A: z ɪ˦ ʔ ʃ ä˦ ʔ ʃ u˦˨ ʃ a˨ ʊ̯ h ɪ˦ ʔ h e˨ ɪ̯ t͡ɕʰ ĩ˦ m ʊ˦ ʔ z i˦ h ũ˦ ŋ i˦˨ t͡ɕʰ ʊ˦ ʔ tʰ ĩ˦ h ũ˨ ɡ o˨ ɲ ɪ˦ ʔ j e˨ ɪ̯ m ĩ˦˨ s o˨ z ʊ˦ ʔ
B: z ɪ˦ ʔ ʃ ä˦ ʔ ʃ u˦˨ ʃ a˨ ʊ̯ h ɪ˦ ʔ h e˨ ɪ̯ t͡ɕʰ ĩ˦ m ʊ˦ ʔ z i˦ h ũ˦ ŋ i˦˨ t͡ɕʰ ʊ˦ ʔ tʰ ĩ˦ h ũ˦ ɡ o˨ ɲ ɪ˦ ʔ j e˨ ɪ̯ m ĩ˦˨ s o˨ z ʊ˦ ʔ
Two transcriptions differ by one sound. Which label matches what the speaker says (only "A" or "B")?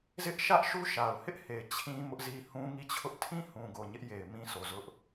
A